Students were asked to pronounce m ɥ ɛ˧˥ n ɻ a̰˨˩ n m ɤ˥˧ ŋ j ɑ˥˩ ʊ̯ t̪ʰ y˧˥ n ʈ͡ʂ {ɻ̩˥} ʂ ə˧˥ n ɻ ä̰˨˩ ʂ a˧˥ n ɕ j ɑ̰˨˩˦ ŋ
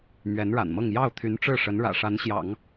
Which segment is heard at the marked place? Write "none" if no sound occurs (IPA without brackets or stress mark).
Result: ɻ̩˥˩